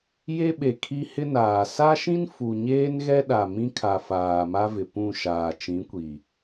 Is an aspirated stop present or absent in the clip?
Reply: present